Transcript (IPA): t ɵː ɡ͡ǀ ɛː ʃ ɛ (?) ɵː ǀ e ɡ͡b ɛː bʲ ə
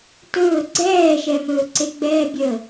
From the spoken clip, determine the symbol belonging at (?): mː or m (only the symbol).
m